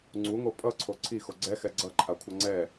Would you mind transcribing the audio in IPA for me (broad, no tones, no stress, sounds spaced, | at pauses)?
ŋ͡ǀ u ŋ o pʼ ʌ ǀʰ o ǀʰ i x o ɡ͡ǀ ɛ x ɛ ɡ͡ǀ ʌ ǃʰ a kʷʰ ʌ ŋ͡ǀ ɛ